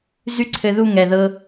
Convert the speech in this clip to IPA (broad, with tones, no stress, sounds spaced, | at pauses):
z y˥˨ ǀʰ ɘ˧ ð u˥˨ ŋ ɛ˨˩ ð ɤ˧